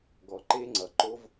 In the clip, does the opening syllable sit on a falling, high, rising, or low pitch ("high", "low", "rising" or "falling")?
low